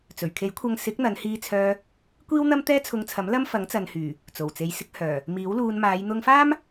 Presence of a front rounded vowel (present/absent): present